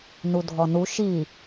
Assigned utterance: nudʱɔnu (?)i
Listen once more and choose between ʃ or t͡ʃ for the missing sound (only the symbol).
ʃ